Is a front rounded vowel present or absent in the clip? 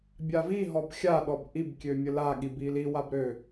present